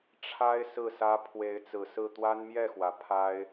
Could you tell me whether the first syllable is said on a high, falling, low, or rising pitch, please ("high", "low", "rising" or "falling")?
high